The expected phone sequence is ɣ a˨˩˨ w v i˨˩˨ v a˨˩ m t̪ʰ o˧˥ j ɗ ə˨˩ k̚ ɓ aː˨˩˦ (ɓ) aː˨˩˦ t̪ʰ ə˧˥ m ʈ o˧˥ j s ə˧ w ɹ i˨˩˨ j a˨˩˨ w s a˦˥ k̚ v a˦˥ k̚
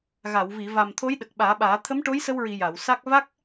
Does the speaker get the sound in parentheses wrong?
no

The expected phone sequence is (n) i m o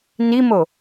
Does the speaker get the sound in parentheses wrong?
no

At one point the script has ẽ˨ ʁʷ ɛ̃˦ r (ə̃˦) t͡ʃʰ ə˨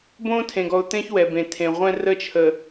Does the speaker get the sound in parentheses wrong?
yes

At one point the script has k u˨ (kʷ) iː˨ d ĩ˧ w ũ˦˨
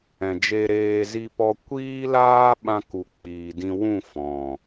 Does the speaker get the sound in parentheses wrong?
yes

